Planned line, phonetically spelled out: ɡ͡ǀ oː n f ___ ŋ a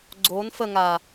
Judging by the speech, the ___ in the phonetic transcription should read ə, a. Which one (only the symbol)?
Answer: ə